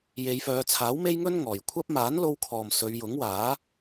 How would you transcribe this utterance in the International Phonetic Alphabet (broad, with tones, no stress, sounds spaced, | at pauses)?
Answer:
j e˨˧ j f œː˨˧ t͡sʰ aː˨˥ w m e˥ j ŋ ɵ˥ n ŋ ɔː˨ j kʷʰ ɐ˥ p̚ m aː˨˥ n l o˧ w kʰ ɔː˨ m s ɵ˨˧ ɥ j ʊ˨˥ ŋ w aː˨˥